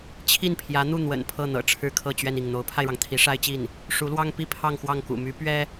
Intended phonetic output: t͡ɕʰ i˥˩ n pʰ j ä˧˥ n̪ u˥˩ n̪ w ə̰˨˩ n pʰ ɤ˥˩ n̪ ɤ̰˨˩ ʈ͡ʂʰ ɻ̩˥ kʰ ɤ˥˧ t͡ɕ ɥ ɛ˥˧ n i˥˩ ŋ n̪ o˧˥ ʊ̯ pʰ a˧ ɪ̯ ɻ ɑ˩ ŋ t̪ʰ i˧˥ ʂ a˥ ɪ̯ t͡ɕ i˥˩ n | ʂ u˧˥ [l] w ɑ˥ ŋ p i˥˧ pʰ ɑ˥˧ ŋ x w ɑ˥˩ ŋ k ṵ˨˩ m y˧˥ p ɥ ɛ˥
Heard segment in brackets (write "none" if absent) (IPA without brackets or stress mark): l